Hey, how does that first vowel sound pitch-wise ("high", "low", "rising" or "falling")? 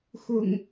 low